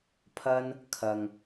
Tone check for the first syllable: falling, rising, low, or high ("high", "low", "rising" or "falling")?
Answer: high